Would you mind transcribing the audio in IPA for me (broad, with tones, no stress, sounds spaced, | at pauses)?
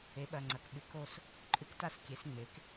e˩˥ ɓ ɐ˩˧˩ ŋ͡ǀ ɐ˩˧˩ k ɓ ɨ˩˥ k o˥˨ s | ǃʼ ɨ˧˥ k t a˥˨ s kʲ e˩˥ s ŋ͡m e˩˥ k